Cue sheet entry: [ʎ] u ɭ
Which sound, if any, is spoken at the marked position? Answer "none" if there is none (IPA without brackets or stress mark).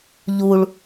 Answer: ʎ